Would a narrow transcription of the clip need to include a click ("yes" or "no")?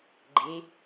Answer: yes